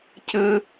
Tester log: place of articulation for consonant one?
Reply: palatal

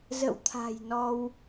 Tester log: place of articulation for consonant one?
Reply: alveolar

